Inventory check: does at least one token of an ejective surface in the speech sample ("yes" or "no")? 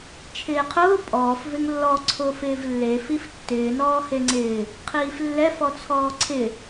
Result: yes